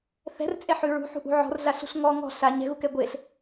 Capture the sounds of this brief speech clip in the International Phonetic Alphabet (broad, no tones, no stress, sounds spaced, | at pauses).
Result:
θ ɛ̤ r t͡sʼ e ħ ʉ ɹ ṳ ħ ṳ ʔ ṳ ʕ ɔ̤ r ɮ a ɬ ṳ ɬ ŋ ɔ ŋ ɔ̤ ɬ a ɲ ɛ̤ ɣ u k ɛ ɡʷ e ɬ